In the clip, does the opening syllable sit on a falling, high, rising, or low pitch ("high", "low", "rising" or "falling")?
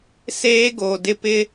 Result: high